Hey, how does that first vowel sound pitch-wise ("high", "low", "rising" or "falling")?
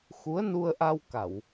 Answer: rising